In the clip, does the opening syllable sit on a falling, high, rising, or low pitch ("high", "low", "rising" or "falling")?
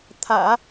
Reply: low